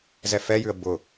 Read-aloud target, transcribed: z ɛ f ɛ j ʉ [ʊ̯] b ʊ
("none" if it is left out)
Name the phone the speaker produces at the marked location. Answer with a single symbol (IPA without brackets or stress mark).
ə̯